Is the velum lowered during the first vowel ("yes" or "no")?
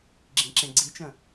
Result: yes